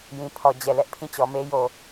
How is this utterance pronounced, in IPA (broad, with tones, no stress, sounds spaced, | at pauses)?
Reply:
j ĩ˨ pʰ ɔ˨ d͡ʑ ɛ˨ l ɛ˦ ʔ pʰ ĩ˦˨ t͡ɕ ɔ˨ m e˦ j o˨